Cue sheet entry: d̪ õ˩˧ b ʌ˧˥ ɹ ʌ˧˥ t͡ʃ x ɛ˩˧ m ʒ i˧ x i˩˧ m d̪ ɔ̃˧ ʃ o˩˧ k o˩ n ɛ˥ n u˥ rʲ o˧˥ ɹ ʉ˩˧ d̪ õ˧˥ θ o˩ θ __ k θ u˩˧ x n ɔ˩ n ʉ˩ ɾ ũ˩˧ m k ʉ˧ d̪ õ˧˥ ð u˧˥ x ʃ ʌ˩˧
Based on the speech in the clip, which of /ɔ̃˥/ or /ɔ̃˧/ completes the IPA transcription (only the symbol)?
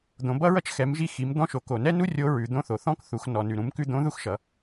ɔ̃˥